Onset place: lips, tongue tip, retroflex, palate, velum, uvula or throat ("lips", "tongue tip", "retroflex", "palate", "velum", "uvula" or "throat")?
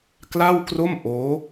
velum